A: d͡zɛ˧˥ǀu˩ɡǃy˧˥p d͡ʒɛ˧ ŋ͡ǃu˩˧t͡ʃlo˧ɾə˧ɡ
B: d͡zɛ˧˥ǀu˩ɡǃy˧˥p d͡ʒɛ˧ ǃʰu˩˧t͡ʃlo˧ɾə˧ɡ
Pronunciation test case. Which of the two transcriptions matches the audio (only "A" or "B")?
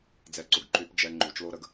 A